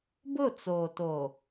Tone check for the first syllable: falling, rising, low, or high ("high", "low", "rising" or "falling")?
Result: falling